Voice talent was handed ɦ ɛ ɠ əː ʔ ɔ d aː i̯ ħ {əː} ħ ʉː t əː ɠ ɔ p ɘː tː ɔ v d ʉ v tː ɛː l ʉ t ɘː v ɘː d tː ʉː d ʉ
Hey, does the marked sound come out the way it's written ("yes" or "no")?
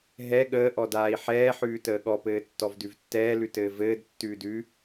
no